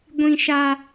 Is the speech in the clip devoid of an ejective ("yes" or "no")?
yes